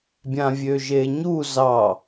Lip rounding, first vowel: unrounded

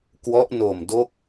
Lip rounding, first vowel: rounded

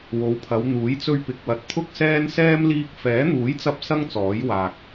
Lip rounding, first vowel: rounded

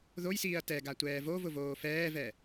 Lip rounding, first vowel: rounded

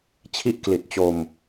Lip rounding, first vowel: unrounded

